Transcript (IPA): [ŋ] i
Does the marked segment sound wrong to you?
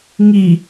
no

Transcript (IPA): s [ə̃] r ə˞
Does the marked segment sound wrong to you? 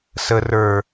yes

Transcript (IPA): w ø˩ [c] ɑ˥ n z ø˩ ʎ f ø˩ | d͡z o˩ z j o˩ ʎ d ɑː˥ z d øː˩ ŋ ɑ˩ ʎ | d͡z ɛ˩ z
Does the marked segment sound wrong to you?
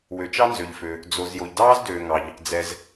yes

